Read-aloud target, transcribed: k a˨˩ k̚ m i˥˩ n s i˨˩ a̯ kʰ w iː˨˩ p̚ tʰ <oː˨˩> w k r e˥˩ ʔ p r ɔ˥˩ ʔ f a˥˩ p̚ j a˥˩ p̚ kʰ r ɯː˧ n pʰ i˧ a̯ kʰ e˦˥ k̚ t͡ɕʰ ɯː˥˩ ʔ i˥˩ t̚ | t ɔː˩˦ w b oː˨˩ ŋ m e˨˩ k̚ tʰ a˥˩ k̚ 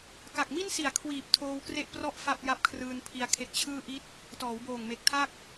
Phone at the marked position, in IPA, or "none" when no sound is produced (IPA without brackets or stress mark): oː˧